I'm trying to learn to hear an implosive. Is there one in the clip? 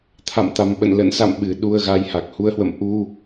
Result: yes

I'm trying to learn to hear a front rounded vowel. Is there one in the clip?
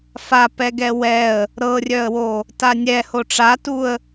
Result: yes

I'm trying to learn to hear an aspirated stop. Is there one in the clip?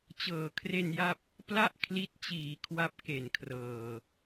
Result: yes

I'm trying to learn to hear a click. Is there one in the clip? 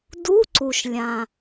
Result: yes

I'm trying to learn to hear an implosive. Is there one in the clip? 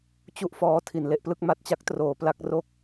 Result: no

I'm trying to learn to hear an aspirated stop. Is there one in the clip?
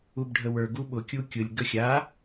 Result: no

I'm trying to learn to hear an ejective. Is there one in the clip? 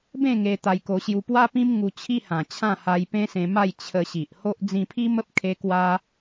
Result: no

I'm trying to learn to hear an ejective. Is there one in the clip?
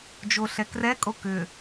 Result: yes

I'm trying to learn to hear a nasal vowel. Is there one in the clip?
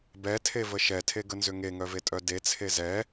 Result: no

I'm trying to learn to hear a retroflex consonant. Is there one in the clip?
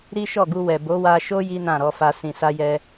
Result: no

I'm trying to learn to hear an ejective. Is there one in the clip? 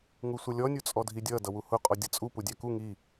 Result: yes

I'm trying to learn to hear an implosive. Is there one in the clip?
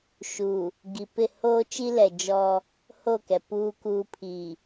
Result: no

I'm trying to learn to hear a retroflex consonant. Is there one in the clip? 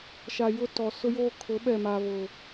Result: no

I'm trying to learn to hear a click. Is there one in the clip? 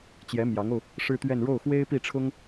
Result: no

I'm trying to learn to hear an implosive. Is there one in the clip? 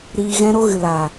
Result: no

